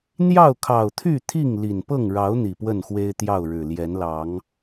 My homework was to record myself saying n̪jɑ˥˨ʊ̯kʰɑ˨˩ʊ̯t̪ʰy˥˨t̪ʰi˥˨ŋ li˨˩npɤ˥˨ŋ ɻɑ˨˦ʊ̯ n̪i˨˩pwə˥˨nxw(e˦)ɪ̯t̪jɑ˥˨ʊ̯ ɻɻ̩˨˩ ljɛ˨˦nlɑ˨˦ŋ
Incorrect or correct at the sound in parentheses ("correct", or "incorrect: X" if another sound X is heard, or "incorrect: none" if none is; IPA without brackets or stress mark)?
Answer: correct